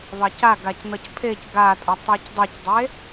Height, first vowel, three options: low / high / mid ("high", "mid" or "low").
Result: low